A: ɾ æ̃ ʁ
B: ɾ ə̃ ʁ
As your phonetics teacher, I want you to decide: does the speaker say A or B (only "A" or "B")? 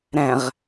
A